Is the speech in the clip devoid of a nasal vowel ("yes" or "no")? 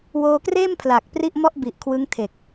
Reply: yes